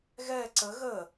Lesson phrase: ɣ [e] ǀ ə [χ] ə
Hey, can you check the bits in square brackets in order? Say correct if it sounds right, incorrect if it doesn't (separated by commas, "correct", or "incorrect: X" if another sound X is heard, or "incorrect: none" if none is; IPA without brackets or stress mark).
incorrect: ɛ, incorrect: ɣ